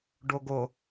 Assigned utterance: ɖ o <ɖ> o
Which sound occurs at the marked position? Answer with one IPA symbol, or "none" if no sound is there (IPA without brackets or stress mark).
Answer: ɡ